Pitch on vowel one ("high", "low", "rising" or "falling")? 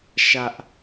high